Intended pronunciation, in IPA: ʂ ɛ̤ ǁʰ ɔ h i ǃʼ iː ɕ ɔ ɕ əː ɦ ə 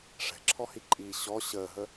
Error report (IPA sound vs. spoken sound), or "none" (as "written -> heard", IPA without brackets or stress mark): none